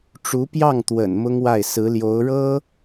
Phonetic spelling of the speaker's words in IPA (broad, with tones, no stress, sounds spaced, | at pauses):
ʈ͡ʂ u˧˥ p j ɑ˥˩ ŋ t̪ w ə̰˨˩ n m ʊ˥ ŋ w a˥˩ ɪ̯ s ɹ̩˧˥ l j o˧˥ ʊ̯ ɻ ɤ˥